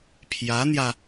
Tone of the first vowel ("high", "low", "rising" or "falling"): rising